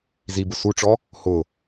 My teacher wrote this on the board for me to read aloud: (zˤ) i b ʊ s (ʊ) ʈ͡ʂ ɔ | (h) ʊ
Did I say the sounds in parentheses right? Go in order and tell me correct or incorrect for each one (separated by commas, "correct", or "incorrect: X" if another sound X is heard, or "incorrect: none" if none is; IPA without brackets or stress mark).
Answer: incorrect: z, incorrect: u, correct